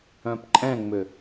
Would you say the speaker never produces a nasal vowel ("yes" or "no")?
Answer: no